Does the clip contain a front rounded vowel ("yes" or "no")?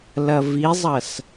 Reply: no